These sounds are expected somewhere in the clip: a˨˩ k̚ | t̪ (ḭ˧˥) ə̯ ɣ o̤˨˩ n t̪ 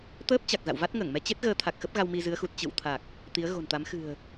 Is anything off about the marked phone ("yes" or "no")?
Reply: yes